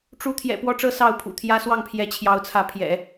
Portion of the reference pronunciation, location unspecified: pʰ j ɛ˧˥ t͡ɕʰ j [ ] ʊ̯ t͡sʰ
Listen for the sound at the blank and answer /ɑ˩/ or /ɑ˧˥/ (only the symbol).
ɑ˧˥